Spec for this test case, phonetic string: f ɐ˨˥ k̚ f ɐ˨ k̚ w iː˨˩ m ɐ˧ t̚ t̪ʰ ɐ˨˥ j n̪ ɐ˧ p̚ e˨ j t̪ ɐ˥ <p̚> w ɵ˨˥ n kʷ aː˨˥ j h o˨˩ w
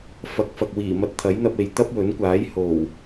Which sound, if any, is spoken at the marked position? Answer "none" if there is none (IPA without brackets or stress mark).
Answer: p̚